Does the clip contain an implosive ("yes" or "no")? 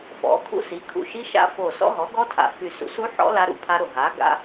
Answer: no